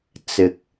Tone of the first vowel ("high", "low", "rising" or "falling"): low